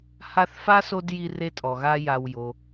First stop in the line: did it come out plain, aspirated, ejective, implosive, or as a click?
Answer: plain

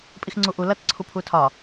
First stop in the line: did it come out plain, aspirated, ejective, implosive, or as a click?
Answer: ejective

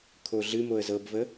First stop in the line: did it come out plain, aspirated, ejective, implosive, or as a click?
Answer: aspirated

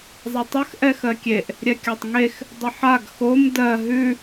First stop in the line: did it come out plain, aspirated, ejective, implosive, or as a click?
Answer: plain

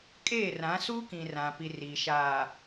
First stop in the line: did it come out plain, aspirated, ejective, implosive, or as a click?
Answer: ejective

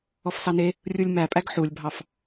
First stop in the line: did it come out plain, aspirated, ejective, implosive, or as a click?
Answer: ejective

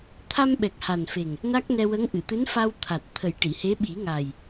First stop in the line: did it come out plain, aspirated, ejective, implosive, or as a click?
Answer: aspirated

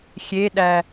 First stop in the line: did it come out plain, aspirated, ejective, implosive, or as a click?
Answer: implosive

